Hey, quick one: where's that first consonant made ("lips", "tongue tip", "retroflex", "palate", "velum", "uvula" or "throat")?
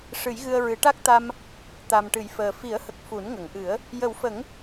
retroflex